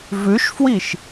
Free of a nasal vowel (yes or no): yes